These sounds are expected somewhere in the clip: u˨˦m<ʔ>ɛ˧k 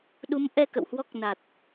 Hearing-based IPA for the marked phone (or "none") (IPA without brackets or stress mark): ʔ